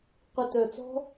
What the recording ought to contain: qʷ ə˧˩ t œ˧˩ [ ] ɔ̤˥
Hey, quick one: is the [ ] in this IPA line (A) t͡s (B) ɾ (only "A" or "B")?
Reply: A